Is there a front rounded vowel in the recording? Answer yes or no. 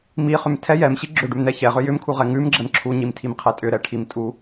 yes